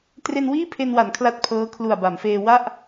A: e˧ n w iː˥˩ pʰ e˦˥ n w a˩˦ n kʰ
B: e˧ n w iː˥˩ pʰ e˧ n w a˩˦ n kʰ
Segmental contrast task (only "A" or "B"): B